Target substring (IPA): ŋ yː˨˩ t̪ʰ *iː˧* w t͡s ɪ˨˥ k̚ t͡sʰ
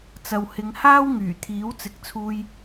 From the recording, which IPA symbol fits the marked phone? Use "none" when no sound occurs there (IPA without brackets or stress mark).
iː˨˥